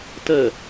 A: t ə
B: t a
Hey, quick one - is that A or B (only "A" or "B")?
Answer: A